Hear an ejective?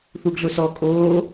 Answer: yes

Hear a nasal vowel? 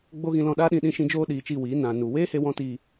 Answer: yes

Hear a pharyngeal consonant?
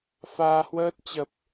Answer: no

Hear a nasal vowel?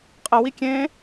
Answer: yes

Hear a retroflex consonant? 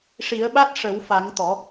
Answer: yes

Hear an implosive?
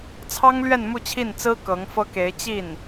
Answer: no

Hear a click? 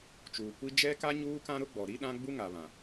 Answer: no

